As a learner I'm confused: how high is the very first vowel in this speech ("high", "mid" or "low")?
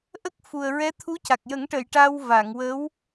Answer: mid